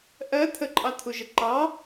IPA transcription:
ʔ ɜ t̪ʰ ə ǃʼ ɑ t̪ʰ u ʒ ə ǃ ɑ

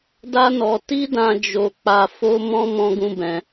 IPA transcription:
d a˦ n ɔ˧ t i˦ d ã˧ d͡ʒ o˧ k͡p a˧ f o˦ m ɔ̃˦ m ɔ̃˦ ɡ ũ˦ b ɛ̃˧

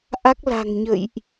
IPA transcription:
ʔ a˦˥ k̚ l a̤˨˩ ŋ ɲ ə̰˧˨ j ʔ

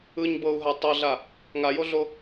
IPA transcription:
ɯ ɲ b ɤ u̯ ɦ a tˤ ɤ ɮ a | ŋ a j o ɮ o

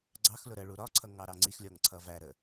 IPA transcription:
ɡ͡ǀ ɑ x l ʊ ɾ ə ɭ u ɾ ɒ ǀʰ ʌ ŋ ɑ ɾ ɑ ŋ͡ǀ i x lʲ ɔ ŋ ǀʰ ʌ v æ ɾ ə

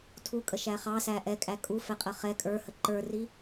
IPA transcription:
tʰ u kʼ ə ʃ æ χ ɑ s æ ʔ ɛ kʼ æ kʼ u f ɛ qʼ ə χ ɛ kʼ ə˞ h ə ǃ ə˞ r i

